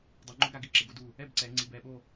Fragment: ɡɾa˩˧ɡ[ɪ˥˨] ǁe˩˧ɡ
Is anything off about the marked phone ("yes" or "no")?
no